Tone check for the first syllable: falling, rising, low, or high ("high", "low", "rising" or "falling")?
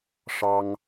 high